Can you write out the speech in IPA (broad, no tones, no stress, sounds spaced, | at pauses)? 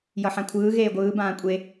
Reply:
j ʌ ħ ã kʷʰ ɯː ɣ eː ɡʷ ɯː b ãː kʷʼ e